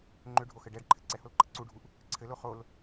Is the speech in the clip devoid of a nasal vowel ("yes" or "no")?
yes